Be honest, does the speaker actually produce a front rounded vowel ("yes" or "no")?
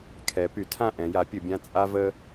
yes